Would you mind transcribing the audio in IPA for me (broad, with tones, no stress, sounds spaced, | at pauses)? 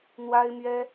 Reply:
n̪ w a˥ ɪ̯ m ɥ ɛ˥